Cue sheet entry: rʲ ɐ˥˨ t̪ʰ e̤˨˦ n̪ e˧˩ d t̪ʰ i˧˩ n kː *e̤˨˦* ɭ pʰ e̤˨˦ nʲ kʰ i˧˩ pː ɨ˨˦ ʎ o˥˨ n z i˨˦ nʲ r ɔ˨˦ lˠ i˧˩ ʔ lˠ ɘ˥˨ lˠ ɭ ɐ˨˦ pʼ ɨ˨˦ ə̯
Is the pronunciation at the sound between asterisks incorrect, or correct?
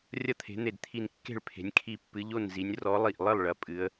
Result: incorrect: e̤˥˨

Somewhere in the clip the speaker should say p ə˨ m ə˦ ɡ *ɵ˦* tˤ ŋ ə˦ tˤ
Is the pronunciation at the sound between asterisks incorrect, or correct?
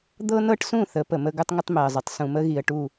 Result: correct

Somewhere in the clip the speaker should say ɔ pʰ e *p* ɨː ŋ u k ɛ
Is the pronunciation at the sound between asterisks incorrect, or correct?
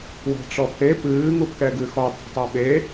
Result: correct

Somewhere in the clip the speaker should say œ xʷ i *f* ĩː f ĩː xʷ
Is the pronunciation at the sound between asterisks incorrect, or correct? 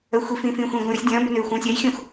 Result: correct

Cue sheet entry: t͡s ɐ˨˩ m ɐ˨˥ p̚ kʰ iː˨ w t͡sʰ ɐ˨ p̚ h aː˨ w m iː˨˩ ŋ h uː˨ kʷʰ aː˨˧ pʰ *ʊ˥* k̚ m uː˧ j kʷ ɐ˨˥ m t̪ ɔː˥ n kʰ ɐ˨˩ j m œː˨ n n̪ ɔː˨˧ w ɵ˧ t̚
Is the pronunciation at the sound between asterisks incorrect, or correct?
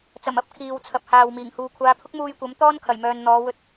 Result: correct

